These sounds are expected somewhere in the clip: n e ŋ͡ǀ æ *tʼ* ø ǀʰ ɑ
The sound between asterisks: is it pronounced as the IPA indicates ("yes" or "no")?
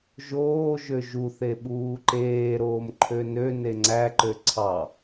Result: no